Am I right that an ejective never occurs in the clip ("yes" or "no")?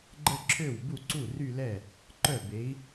yes